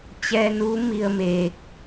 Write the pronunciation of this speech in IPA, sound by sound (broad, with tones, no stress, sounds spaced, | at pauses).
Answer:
t͡ɕ ɛː˧ n uː˧˥ m i˧ ə̯ m eː˧ k̚